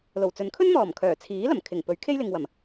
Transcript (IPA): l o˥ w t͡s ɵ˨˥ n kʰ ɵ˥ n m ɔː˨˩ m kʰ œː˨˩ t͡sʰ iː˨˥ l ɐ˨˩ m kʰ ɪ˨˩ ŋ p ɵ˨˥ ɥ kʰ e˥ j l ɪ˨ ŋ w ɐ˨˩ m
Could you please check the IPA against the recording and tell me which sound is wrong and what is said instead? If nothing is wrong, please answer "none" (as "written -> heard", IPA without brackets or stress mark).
o˥ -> o˨˩